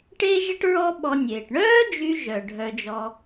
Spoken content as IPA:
ʈ e˥ ʒ ə˥ ʈ ɹ ɔ˥ ɓ ɔ˧ nʲ eː˩ ʈ ɳ œː˥ d͡ʒ y˧ ʒ œ˩ ɖʱ œ˧ d͡ʒ ɔ˧

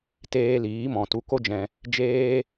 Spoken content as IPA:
t eː˧ l iː˨˦ m ɔ̃˨ t u˧ k o˦ d͡ʒ ɛ̃˧ | d͡ʒ eː˦

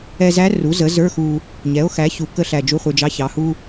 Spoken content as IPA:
ɛ˧ z æ˧˥ r u˩˥ z ə˩˥ z ə˞˧˥˧ x u˧ | ɲ ɛ˩˥ o̯ x æ˩˥ ç u˩ k ə˧ ɬ æ˩ d͡ʒ u˧˥˧ χʷ ə˞˧ d͡ʒ ɑ˧˥˧ ç ɑ˩˥ h u˧˥˧

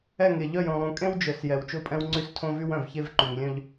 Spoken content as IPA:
ɛ˦˨ ŋ e˨ ʎ œ˦˨ j õ˨ lˠ ũ˨ kʼ ẽ˦ w d͡ʒ œ˨ s j ɛ˨ w t͡ʃ o˦˨ pʼ ɛ̃˦ w ŋ͡ǀ y˦ s tʰ õ˦ v y˦ w œ̃˨ v ç e˦ v ǃ y˨ ŋ lʲ œ̃˦ ʎ

